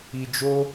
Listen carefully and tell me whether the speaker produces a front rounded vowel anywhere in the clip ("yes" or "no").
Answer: no